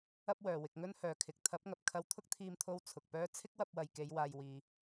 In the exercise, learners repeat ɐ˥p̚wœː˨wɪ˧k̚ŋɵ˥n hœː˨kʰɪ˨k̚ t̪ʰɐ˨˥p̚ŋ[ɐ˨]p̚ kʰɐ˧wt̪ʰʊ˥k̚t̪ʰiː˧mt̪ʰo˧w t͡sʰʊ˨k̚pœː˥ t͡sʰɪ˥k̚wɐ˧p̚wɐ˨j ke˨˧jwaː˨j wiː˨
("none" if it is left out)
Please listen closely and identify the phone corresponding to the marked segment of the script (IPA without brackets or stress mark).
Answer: ɐ˨